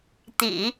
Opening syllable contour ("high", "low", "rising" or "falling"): low